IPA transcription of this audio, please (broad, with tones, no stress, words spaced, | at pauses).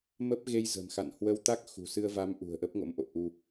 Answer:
mə˦˥p̚ ɣe˧jzə̤˨˩mxa̰˧˨n hwə˧wt̪a˦˥k̚ xṳ˨˩sɨ˧ə̯va˨˦m ʔṳ˨˩ə̯ʔə˦˥p̚ŋo̰˧˥mʔo̰˧˨ ʔu˧